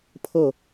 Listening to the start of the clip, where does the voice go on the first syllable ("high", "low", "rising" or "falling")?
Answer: falling